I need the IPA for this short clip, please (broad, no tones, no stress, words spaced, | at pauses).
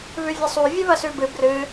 βʉvʲɐsˤu vʲɨβɐsʉbɨ brɨ